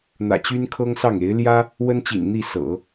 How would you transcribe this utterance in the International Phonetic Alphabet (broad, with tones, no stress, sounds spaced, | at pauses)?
n̪ ä̰˨˩ t͡ɕ y˥ n kʰ ɤ˥ ŋ s ɑ˥˩ ŋ e˧˥ ɪ̯ l j ä˥ | w ə˥ n t͡ɕ ḭ˨˩ n n̪ i˥˩ s ɤ̰˨˩˦